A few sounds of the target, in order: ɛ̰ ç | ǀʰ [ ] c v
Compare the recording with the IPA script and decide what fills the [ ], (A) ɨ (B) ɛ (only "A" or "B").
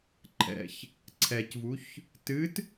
B